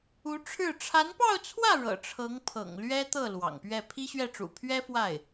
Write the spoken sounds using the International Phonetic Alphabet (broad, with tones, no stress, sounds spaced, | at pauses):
u˧˥ ʈ͡ʂʰ ɻ̩˥˩ ʈ͡ʂʰ a˧˥ n p ɑ˥˧ ʊ̯ t͡sʰ w ä˥˩ ɻ ɤ̰˨˩ ʈ͡ʂʰ ɤ˧˥ ŋ pʰ ɤ̰˨˩ ŋ l ɥ ɛ˥ t̪ ɤ˥˩ l w ɑ̰˨˩ ŋ p ɥ ɛ˥˩ pʰ i˥ ɕ ɥ ɛ˥˩ ʈ͡ʂ ṵ˨˩ pʰ ɥ ɛ˥ f w a˥˩ ɪ̯